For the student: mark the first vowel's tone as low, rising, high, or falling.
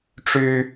high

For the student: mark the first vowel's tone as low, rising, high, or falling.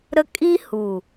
high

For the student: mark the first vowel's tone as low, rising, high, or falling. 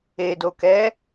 low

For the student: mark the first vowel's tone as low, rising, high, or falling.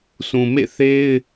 low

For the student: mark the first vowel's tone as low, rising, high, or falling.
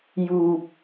low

